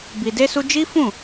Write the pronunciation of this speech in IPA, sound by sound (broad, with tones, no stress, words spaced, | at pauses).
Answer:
bi˧de˦su˦ d͡ʒi˦fũ˦˨